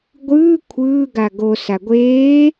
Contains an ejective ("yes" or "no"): no